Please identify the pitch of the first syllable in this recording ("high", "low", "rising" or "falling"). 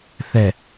low